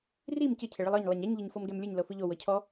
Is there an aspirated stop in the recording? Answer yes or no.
yes